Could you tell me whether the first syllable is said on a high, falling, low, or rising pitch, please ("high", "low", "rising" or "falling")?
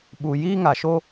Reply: low